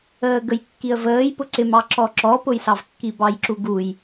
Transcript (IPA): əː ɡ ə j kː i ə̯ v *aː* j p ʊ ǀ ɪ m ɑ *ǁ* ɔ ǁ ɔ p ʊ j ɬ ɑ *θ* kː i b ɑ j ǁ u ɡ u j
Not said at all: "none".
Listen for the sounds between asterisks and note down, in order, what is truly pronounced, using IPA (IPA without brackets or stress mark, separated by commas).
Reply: əː, ǁ, v